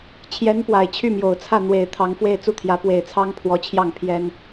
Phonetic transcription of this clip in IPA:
t͡ɕʰ j ɛ˧˥ n p w a˨˩ ɪ̯ t͡ɕʰ y˥˩ m j o˨˩ ʊ̯ t͡sʰ ä˥˩ n̪ w e˨˩ ɪ̯ t̪ʰ ɑ˧˥ ŋ f w e˥˧ ɪ̯ t͡s u˥˩ t̪ʰ j ä˧˥ p w e˨˩ ɪ̯ t͡sʰ ɑ˥ ŋ pʰ w ɔ˧˥ t͡ɕʰ j ɑ˥˩ ŋ pʰ j ɛ˥ n

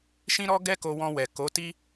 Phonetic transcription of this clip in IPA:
ʃ ĩ˦ ɾ ɔ˦ ɡ ɛ˦ k o˧ w ɔ̃˧ w ɛ˨ k o˨˦ t i˦

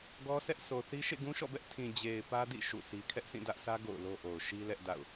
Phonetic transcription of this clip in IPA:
ɡ ɔ˦ sʰ ɛ˦ ʔ sʰ o˨ θ i˦ ʃ ḛ˦˨ ɡ ũ˦ ʃ ɔ̰˦˨ b ɛ˦ ʔ tʰ ĩ˨ d͡ʑ e˨ ɪ̯ p ä˦ d ḭ˦˨ ʃ ṵ˦˨ s i˦ kʰ ɛ˦ ʔ sʰ ĩ˦˨ d ä˦ ʔ s ä˦ ɡ o̰˦˨ ʊ̯ l o˦ ʔ o˨ ʊ̯ ʃ i˦ l ɛ˦ ʔ d a̰˦˨ ʊ̯

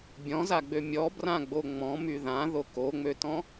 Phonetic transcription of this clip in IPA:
bʲ ɔ̃ z a ɡ͡b ø mʲ ɔ b r ã ɡ͡b o ŋ͡m ɔ̃ m y ð ã ð o k o ŋ͡m ø t ɔ̃

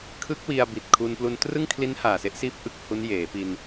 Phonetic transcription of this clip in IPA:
kʰ ɯ˦˥ k̚ w i˧ a̯ b i˨˩ t̚ kʰ u˧ n p l u˧ n t r ɯ˥˩ ŋ kʰ l i˦˥ n h aː˨˩ s e˥˩ ʔ s iː˦˥ p̚ ʔ ɯ˥˩ k̚ h u˦˥ n j eː˩˦ p i˧ n

